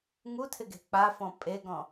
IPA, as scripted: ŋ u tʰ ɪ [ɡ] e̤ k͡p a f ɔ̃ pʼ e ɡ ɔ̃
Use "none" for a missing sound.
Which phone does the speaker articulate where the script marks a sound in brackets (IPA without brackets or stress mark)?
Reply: ɡ